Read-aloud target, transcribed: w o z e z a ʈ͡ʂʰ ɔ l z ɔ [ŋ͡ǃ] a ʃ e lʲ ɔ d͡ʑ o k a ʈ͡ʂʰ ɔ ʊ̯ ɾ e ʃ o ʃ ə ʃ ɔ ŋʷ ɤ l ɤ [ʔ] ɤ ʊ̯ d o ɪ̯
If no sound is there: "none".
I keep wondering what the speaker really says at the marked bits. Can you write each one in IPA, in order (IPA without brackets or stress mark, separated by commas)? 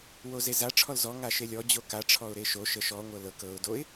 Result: ŋ, k